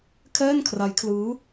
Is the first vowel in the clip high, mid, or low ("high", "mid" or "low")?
mid